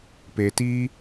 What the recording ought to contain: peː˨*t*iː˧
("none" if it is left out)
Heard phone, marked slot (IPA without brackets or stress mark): t